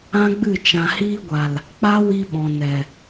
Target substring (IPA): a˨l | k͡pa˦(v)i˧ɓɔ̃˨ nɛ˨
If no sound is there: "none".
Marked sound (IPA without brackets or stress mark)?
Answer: w